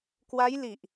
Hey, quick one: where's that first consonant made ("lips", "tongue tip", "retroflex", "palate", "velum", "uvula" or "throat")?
velum